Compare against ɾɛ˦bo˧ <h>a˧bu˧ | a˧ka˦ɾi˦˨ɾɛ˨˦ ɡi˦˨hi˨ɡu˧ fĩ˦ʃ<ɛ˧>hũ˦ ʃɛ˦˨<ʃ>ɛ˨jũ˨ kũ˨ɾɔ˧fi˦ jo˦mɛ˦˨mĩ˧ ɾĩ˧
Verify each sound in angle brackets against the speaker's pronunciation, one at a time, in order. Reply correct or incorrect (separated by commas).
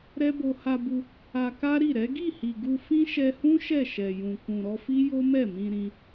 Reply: correct, correct, correct